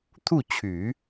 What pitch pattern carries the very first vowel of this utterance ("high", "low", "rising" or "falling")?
falling